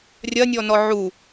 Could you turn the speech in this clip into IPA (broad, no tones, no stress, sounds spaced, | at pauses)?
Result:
rʲ ɐ nʲ ɔ n ɔ ʕ u